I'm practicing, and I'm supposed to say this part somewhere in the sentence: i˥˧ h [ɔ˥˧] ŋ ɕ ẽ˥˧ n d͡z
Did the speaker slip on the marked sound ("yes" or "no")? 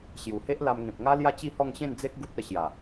no